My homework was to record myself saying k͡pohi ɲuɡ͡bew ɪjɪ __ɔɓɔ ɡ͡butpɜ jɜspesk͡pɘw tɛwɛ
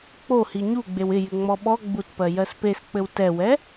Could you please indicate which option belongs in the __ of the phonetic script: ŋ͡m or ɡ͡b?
ŋ͡m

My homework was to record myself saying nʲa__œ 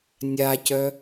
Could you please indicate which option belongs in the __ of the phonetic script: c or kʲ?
c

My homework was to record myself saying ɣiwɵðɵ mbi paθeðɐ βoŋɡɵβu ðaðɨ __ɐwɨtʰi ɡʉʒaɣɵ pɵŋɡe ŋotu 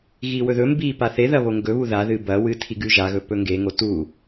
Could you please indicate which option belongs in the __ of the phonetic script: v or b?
b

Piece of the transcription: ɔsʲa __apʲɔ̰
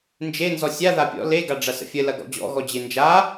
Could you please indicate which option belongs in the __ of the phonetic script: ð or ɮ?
ð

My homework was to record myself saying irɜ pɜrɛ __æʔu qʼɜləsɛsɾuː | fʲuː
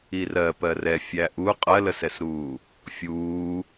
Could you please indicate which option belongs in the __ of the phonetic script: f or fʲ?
fʲ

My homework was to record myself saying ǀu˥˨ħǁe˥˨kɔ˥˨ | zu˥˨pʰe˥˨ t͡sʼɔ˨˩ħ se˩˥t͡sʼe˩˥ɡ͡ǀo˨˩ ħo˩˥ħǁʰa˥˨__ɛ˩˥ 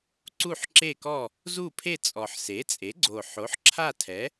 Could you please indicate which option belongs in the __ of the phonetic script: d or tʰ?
tʰ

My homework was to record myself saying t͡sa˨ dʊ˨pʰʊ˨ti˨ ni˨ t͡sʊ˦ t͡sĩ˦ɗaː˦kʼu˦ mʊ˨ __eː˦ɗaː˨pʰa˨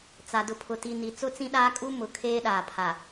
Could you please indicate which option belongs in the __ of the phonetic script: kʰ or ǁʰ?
kʰ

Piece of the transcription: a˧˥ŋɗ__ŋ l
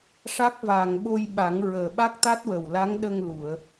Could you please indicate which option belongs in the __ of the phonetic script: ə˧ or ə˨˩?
ə˧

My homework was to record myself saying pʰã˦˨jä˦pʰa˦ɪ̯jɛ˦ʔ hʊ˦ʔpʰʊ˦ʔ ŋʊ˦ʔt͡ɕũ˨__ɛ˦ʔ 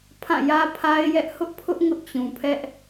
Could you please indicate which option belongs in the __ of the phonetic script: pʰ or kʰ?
pʰ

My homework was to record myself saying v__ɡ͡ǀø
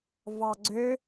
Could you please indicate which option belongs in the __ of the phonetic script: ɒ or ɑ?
ɑ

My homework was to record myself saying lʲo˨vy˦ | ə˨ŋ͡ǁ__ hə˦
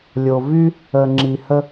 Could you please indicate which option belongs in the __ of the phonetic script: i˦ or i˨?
i˨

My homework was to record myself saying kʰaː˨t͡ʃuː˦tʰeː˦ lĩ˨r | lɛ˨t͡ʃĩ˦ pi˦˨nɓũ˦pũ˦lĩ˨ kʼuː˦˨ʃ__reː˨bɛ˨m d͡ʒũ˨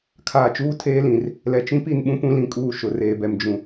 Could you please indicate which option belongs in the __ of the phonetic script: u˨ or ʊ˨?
ʊ˨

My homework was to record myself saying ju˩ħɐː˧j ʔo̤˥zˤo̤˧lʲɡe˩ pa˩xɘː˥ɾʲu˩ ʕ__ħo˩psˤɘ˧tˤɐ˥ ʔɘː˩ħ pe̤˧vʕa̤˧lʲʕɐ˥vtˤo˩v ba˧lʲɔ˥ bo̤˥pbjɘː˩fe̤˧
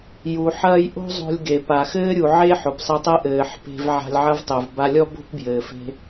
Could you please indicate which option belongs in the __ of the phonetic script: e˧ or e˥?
e˥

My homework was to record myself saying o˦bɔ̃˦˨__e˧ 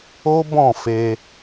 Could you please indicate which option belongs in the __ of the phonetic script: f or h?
f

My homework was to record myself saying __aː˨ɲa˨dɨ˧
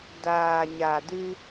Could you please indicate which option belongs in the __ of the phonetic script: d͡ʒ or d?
d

